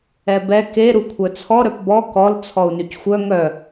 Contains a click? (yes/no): no